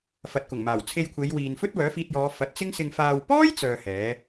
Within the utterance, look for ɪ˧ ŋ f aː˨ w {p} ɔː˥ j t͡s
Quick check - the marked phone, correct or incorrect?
correct